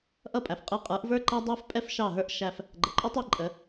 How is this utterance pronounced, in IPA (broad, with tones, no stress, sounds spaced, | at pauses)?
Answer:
ʔ ʌ˥˩ pʼ æ˩ f qʼ ɛ˧ qʼ ə˞˩˥ ʔ v ə˞˥ ǃ æ˥ dˤ æ˥ f pʼ ɛ˥ f ʃ ɑ˥˩ ɦ ə˞˥ ʔ ʃ æ˧ f | ɡ͡ǃ ə˩ ǃʼ ɔ˥ tˤ ɛ˧ ǃʼ ə˩˥